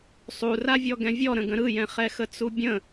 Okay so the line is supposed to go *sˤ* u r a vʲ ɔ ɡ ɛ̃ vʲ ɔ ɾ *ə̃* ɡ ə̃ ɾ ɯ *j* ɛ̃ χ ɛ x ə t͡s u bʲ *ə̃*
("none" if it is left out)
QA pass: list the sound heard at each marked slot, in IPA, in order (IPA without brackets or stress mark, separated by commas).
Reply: sˤ, ə̃, j, ə̃